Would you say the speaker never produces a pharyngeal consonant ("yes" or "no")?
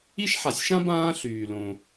no